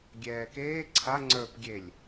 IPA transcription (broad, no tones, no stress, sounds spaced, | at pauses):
ɡʲ ɛː k eː ǀʰ a ŋ͡ǀ ə˞ p ɡʲ e lʲ